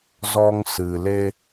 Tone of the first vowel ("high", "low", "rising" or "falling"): high